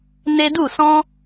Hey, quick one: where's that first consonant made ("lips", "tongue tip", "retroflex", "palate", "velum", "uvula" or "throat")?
tongue tip